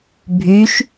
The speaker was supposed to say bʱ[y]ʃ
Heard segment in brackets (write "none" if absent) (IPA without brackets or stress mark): y